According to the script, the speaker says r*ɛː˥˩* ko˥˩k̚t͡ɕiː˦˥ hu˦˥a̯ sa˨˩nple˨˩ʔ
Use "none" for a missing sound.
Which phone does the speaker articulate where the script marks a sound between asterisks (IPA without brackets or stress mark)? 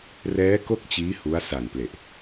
ɛː˦˥